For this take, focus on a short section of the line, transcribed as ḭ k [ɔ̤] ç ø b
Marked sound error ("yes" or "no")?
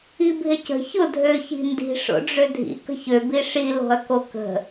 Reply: yes